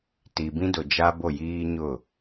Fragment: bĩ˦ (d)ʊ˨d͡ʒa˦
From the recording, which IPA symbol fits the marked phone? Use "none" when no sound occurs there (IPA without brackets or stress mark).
d